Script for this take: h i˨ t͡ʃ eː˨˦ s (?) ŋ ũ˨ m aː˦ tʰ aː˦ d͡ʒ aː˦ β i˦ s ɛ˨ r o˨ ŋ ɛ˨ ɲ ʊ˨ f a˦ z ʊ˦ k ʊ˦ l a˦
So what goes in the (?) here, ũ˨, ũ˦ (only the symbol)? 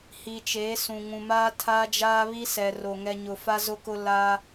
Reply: ũ˨